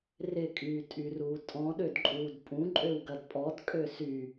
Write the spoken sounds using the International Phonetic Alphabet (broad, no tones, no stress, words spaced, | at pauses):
rɪkʼyːtʼyruː tʼɔ̃ɗødǃʼuːd pʼũǃʼøwɡɐd pʼɔdkʼø sy